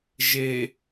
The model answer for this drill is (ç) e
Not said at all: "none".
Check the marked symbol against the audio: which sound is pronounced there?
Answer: ʒ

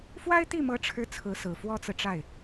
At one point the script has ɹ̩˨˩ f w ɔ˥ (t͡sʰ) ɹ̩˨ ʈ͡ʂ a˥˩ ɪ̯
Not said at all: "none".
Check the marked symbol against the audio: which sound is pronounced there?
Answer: t͡s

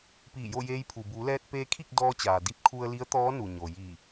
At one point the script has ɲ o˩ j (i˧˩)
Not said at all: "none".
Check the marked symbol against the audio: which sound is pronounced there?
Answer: i˧˩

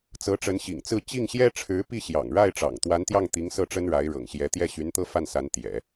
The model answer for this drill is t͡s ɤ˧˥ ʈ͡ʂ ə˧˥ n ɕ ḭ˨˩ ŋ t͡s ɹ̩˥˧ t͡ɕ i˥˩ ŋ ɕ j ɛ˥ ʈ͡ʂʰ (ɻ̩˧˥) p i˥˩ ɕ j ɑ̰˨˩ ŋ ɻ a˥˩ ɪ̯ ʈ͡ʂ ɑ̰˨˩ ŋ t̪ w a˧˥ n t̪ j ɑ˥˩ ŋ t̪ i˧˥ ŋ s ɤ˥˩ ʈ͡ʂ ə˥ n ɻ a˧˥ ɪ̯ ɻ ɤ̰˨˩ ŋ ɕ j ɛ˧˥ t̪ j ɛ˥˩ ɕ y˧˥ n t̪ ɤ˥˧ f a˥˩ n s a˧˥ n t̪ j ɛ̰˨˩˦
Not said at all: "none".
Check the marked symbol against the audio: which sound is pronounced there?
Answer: ɻ̩˧˥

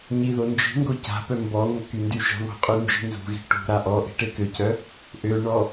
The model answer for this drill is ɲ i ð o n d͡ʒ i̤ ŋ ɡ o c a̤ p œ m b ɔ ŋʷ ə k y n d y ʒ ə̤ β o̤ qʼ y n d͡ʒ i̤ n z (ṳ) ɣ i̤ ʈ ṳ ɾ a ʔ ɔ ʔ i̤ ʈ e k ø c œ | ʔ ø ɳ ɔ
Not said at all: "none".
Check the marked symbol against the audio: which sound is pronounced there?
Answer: ṳ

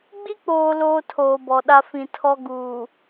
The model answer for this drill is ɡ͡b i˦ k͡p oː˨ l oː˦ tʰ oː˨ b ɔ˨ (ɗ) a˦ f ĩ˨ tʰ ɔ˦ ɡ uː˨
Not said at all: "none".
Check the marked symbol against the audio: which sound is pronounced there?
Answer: ɗ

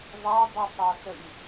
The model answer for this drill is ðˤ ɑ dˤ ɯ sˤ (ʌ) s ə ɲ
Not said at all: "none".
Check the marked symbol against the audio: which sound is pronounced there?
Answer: ɑ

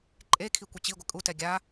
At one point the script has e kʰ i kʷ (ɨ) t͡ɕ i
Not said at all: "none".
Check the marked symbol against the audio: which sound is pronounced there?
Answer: i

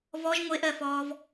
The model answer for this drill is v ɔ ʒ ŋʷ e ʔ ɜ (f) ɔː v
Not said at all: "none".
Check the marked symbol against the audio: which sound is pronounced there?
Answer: f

